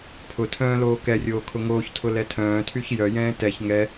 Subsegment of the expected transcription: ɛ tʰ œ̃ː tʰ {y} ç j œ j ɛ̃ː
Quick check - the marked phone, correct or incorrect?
correct